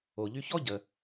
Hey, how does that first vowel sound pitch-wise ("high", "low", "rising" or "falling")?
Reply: low